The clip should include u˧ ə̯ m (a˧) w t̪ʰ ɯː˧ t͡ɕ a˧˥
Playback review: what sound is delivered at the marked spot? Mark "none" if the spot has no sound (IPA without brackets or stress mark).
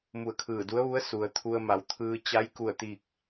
a˩˧